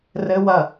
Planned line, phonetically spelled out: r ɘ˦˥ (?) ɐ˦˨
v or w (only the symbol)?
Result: w